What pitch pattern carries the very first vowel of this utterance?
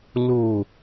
low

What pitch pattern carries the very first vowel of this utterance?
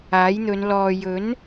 rising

